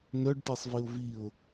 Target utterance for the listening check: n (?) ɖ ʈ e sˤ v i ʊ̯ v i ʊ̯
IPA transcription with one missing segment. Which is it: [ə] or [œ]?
œ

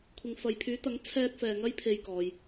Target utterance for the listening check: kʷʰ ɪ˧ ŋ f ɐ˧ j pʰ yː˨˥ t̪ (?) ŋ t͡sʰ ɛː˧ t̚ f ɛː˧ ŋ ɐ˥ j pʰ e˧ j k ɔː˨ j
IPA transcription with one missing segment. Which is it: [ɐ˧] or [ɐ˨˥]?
ɐ˨˥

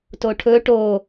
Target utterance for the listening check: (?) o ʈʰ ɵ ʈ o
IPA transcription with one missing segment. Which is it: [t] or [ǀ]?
t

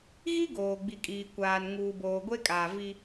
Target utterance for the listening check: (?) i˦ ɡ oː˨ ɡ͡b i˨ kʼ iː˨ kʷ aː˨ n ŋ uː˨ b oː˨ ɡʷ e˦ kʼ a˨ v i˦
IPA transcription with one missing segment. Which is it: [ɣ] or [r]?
ɣ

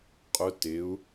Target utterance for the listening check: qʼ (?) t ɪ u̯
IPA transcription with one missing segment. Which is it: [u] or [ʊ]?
ʊ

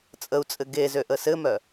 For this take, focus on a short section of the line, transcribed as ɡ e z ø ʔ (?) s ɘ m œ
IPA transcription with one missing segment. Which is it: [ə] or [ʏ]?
ə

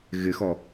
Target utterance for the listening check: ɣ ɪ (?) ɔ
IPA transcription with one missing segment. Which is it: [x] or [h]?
x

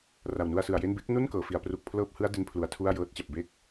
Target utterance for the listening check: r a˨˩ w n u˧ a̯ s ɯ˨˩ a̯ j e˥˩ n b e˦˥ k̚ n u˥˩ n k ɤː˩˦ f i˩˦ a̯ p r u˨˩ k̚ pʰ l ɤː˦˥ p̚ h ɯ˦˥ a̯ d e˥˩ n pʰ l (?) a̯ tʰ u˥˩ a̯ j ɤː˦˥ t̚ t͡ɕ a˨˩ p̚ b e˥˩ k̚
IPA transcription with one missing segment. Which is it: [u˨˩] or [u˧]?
u˨˩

